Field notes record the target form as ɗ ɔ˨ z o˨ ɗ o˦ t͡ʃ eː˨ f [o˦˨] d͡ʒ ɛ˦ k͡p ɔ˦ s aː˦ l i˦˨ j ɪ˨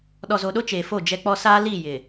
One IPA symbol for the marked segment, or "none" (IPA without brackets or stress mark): o˦˨